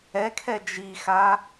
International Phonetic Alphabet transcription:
ɛ kʰ ɛ d͡ʒ i x a

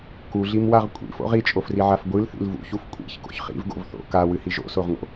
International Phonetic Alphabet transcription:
k u ɮ i m w a ʁ kʷʼ ḭ f o̰ ʁ i t͡ʃʼ o f r i ʕ a f ɡʷ ɨ l θ ḭ l v ṵ ç u f kʷʼ ḭ ç k o̰ ç χ ḭ v ɡ o̰ v θ o̰ k a w ɨ h i ʒ o̰ s o ʁ ŋ o̰

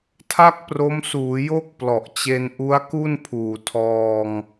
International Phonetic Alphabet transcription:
tʰ a˥˩ k̚ p r o˦˥ m s uː˩˦ j o˥˩ k̚ p l ɔ˨˩ ʔ t͡ɕ e˧ n ʔ u˦˥ a̯ k u˥˩ n pʰ uː˨˩ tʰ ɔː˧ ŋ

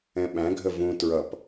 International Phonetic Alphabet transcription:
ɛ̃ ɓ æ̃ ɡʱ ə v ũ t ɹ ʌ p

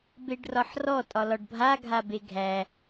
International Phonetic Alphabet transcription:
b e ɖ r ɒ ħ r ɔ tʼ ɒ l ɒ ɖ bʱ a ɡʱ a b e ɡʱ æ

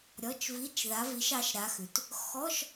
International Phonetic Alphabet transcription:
ɾʲ ɔ˧˥˧ t͡ʃ v i˧˥˧ t͡ʃ ð a˨˦ v i˨˦ ʃ ɑ˨˦ ʃ ɾ a˨˦ x ʉ˩ t | x ɔ˧˥˧ ʃ

